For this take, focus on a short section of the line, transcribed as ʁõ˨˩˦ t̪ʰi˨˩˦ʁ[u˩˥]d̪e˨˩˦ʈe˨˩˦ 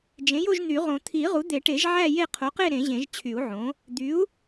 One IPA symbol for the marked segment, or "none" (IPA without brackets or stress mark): u˩˥